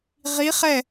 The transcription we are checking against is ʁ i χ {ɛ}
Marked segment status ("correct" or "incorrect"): correct